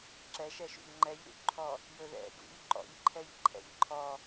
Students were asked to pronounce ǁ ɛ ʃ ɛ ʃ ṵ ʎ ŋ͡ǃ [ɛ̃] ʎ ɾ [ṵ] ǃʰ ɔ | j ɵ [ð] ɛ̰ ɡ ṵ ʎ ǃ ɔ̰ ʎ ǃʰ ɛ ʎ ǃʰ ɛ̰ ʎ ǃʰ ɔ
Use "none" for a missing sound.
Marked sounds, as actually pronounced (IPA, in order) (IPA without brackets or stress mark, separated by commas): ɛ, ṵ, ð